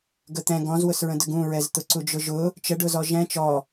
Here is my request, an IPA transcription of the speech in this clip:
ɡət̪ɛ̃ ɡɔ̃zwʊsɹə̃dəɡ ũɹɛz t̪ʊǀud͡ʒʊʒʊ | t͡ʃəɖʊzɔ ʒɛ̃ t͡ʃɔ

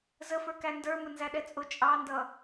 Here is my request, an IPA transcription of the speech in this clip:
zəfə˞kæ ndə˞mə nzæɗɛt͡sʼʊ t͡ʃʼɑndʌ

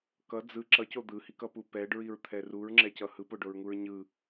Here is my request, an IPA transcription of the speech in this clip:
kʌ d͡zɯ ǁʌco d̪ɯhikʌpu pɛɖɹiɹt̪ʰɛ ruɹŋ͡ǁɛcʌ hɯpoɖoɹŋuɹ ɲɯ

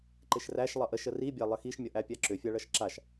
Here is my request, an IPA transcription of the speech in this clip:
ǃɪʃræʃ lˠʌʔəʃ əribʲa lˠəxiʃmʲʌ ʔæpʲaǁʏfʲa ɭʌʃǁaʃ

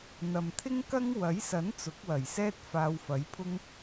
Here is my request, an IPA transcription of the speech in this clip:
n̪ɐ˨mt̪ʰɪ˥ŋkɐ˥ŋ wɐ˨˥jsɐ˨˥n t͡sʊ˨˥k̚wɐ˨˩jsɛː˥t̚ faː˧wfɐ˨˥jpʰʊ˥ŋ

